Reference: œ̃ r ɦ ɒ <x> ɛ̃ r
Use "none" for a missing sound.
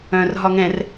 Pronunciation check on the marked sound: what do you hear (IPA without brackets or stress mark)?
ŋ